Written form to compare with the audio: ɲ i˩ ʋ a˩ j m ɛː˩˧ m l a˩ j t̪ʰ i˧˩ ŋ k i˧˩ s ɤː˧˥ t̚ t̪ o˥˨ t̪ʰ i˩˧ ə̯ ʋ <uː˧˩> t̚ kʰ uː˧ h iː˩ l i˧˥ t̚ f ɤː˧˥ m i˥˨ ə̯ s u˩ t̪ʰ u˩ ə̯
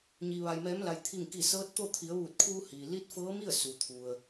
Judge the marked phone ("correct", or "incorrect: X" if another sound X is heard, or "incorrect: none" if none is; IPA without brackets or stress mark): correct